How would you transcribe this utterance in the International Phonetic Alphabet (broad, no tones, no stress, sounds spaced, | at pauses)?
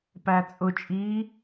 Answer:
p æ t͡sʼ ʊ t͡ʃʼ iː